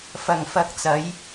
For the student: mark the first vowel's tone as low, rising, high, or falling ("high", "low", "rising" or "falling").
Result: low